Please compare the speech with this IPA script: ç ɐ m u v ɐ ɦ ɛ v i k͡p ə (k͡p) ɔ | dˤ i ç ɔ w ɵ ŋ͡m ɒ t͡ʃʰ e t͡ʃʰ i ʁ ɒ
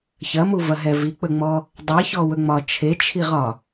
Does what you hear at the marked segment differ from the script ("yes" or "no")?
yes